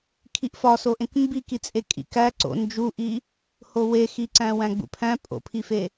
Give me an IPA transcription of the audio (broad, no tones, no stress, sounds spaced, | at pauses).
kʰ i ʔ f ɒ s o ʔ ẽ k m b i k i t͡sʼ e kʼ ḭ k æ ǀ o̰ n d͡ʒ u ʔ i | h o w e x i ǀ æ̃ w æ̃ ɡ͡b ṵ pʰ æ̃ pʼ o̰ pʰ i f e